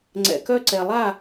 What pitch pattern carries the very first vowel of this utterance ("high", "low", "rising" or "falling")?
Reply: low